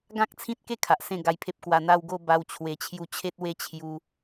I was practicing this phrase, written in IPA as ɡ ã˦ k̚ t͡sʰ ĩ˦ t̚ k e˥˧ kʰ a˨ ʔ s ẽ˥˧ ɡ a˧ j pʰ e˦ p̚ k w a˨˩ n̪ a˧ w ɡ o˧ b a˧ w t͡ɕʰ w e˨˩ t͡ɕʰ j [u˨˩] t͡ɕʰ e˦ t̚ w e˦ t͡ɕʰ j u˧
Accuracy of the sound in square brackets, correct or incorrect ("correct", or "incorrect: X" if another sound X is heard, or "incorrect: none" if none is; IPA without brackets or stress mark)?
incorrect: u˧